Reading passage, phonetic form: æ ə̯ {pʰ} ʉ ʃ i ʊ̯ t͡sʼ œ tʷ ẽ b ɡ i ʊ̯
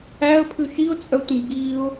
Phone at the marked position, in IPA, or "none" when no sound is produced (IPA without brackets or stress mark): pʰ